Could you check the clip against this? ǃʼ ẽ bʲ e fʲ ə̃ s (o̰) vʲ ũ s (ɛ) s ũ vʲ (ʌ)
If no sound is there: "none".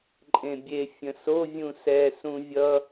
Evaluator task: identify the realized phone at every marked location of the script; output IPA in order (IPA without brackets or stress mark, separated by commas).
o, ɛ, ʌ